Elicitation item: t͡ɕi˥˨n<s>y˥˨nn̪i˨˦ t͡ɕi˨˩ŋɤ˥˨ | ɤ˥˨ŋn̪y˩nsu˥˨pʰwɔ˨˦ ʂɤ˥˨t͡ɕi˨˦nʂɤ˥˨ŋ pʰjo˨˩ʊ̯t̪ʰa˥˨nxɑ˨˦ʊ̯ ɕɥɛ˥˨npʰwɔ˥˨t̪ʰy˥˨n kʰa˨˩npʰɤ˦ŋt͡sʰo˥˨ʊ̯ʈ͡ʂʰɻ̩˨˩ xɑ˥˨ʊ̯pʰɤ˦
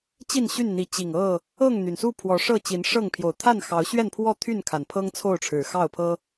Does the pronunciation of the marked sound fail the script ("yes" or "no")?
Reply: yes